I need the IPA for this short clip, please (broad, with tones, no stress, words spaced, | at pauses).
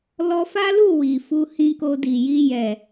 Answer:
lɔ˧fa˦lu˦˨ wi˨fu˧ hĩ˧ko˧di˨ji˧ jɛ˨